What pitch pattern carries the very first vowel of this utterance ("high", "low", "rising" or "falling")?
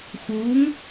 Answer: rising